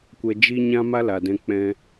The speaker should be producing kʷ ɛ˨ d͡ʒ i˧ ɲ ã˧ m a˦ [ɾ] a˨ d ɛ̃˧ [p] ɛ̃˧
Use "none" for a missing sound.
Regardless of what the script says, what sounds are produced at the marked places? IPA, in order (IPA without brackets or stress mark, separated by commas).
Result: l, k͡p